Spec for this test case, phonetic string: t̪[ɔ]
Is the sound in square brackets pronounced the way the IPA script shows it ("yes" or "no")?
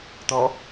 yes